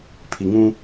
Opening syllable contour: low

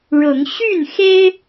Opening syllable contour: rising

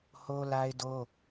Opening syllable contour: high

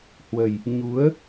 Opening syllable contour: low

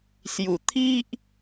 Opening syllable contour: low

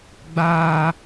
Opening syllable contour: high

